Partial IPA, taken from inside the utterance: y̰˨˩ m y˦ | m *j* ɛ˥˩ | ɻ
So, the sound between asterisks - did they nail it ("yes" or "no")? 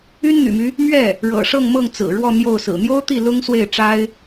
no